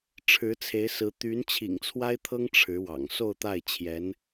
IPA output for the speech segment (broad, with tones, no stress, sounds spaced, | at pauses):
ʈ͡ʂʰ ɻ̩˧˥ t͡sʰ e˧˥ ɪ̯ s ɹ̩˧˥ t̪ y˧˥ n t͡ɕʰ ḭ˨˩ ŋ t͡sʰ w a˥ ɪ̯ t̪ʰ ɤ˥ ŋ ʈ͡ʂʰ ɻ̩˧˥ w ɑ̰˨˩ ŋ s o˥˧ ʊ̯ t̪ a˥˩ ɪ̯ t͡ɕʰ j ɛ˧˥ n